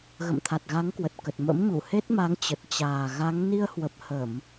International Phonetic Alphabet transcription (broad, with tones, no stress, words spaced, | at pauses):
ɣə̰˧˨mt̪ʰa˨˩t̚ɣa˨˦ŋkwə˨˩t̚ kə˨˩t̚ mə̰˧˥mɲu˧˩ he˦˥t̚ ma˨˦ŋt͡ɕə˨˩t̚ t͡ɕaː˨˩ɣa˨˦ŋ ni˧ə̯hwə˨˩p̚ hə˧˩˨m